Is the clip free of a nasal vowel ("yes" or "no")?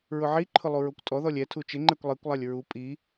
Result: yes